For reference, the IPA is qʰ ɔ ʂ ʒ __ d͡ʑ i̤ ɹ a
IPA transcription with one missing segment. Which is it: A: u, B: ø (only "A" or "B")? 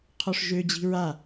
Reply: B